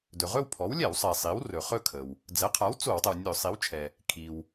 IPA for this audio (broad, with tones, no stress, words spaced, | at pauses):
dɵ˩ʁɵ˥˧wpʰɔ˩˥w lʲɛ˧˩˧wsˤɛ˩ sˤi˩˥w rɵ˩χɵ˥˧kʰə˩w | d͡zɛ˩˥qʰa˩˥w t͡so˧˩˧wtˤə˩w nʲɵ˧˩˧sˤi˩˥wt͡ʃʰɛ˩ | kʰi˩w